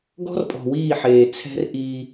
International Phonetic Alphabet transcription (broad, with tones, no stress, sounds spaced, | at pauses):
ɡ ɔ̤˦ r pʼ ɔ̤˨ w iː˦˨ ħ eː˨ t͡sʰ ɛ̤˦ r ʔ iː˦